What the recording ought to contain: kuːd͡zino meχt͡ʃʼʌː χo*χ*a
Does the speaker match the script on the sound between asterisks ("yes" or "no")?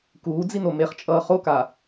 no